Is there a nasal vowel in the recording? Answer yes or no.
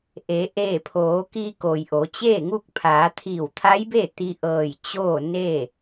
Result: no